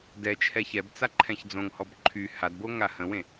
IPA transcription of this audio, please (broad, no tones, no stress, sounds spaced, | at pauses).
d ɛ t͡ʃʰ ɛ ç ɛ b t͡s a ǃʰ ɛ̃ ç d͡z õ ŋ h ɔ b ǃʰ y h a d b o ŋ a h ə̃ w ẽ